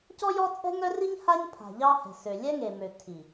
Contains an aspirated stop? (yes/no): yes